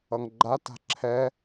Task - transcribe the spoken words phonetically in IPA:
ʌ ŋ ɡ͡ǃ a t a̤ ǁʰ ɛ

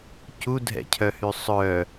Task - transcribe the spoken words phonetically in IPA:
c u dʱ ɛ̰ cʰ œ h y sˤ œ

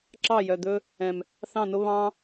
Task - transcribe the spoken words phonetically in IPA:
ǁ ɑ˦˨ j œ˨ d̪ ɵ˦ | ɛ̃˨ m | θ ɑ̃˦˨ n o˦ β ɑ̃˦

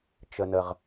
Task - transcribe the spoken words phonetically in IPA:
t͡ʃ ə˨ n ə˨ ʁ

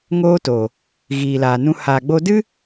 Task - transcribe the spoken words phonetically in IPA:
ŋ oː˦ t o˨ | ɣ iː˨ l aː˨ n ũ˧ h aː˨ ɡ͡b o˧ d ɨ˦

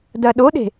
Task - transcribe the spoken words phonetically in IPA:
d ɐ ɗ o ɗ e̤

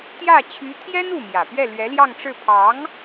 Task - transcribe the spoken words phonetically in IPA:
t̪ j ä˥˩ t͡ɕʰ y˧˥ t̪ʰ j ɛ˥ n u˥˩ m j ä˨˩ p ɥ ɛ˥˩ l ɥ ɛ˧˥ l j ɑ˥˧ ŋ ʈ͡ʂ ɻ̩˥˩ pʰ ɑ˧˥ ŋ

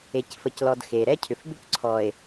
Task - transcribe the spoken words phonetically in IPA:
e˨ c f ə˨ c l ɔ˨ d x e˨ ɾ ɛ˦ cʰ ʏ˨ f b ʏ˦ c ǀʰ ɔ˨ e̯

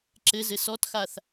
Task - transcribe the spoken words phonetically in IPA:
ǁ ɘ z ɘ s ɔ t x a θ

